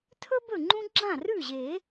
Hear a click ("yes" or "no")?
yes